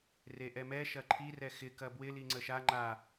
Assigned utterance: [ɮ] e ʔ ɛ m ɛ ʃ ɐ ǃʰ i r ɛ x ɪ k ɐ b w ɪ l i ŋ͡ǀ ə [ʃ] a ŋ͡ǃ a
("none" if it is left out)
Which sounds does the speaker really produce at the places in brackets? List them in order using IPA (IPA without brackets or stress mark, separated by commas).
r, ʃ